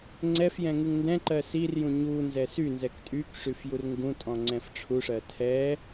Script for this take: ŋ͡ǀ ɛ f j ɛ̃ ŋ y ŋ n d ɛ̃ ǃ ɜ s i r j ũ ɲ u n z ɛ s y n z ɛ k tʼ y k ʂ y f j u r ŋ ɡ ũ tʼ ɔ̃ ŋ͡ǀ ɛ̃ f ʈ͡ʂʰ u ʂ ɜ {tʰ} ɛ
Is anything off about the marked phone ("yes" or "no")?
no